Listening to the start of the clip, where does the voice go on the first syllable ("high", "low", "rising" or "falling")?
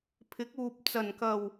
rising